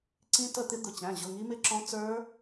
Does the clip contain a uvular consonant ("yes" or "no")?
no